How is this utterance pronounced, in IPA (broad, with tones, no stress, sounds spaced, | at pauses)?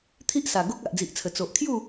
t̪ʰ i˦ ʔ s a˨˩ ɡ o˦ k̚ a˨ ʔ d͡z i˨ ʔ t͡sʰ ə˨˩ t͡s o˨ ʔ kʰ j u˥˧